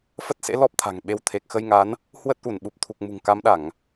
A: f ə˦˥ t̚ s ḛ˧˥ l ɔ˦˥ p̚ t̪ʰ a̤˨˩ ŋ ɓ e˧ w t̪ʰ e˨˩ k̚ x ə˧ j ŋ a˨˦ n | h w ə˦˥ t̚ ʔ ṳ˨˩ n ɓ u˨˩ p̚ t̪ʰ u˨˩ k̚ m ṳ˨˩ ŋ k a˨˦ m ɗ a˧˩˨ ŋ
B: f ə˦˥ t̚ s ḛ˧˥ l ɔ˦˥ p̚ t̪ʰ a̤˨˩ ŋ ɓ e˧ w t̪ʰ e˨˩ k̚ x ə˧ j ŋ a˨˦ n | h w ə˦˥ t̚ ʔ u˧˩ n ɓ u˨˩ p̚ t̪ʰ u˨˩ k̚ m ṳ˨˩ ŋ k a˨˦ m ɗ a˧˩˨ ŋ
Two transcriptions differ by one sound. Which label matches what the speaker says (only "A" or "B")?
B